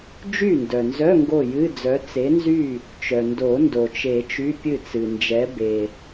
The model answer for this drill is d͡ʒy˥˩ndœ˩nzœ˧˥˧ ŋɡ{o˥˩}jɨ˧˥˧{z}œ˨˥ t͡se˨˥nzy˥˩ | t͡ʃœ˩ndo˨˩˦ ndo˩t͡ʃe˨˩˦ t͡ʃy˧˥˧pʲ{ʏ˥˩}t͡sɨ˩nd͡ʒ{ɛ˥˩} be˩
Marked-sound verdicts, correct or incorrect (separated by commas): correct, incorrect, incorrect, incorrect